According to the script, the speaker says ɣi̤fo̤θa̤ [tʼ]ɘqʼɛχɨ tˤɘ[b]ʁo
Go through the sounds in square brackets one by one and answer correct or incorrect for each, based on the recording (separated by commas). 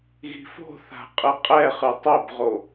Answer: incorrect, correct